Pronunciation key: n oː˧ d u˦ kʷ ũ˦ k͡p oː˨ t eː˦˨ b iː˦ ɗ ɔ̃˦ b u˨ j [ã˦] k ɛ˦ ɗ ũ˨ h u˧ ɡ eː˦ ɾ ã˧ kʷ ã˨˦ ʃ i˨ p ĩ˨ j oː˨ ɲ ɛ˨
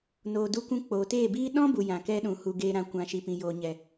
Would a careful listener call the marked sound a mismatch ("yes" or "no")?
yes